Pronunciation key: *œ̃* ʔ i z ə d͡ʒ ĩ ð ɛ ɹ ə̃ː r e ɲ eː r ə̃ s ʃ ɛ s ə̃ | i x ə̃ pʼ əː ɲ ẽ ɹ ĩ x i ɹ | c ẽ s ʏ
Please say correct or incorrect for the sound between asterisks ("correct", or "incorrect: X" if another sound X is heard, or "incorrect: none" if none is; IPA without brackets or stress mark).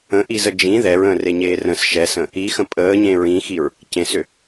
incorrect: ə̃